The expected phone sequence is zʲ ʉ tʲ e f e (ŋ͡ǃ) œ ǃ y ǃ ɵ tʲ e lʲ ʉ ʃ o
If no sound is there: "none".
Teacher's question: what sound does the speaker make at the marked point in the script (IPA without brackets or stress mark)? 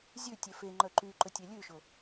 ŋ͡ǃ